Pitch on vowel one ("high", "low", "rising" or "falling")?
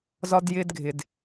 high